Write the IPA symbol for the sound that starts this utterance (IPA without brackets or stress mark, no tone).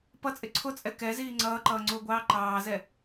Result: p